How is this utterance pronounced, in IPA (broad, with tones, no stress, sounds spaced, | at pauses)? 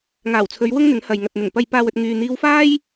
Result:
ŋ aː˨˩ w t͡sʰ ɵ˨˧ ɥ w ʊ˥ ŋ n̪ ɪ˨˥ ŋ h ɐ˨ j ŋ ɐ˨ t̚ n̪ ɪ˨˩ ŋ p ɐ˨ j p aː˨ w ɵ˨ t̚ ŋ yː˨ n̪ iː˧ w f aː˥ j